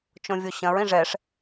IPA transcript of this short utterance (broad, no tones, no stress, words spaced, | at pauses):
t͡ʃõvʲoɕɐ̃ɹ ĩʐɛʂ